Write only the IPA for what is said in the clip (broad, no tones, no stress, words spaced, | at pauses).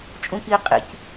t͡ʃʼũki qʼḭc